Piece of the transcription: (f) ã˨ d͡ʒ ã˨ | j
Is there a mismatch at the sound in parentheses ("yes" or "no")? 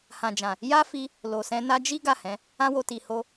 yes